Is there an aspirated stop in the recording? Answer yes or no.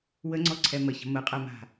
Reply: yes